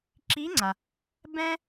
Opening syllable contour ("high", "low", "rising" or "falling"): rising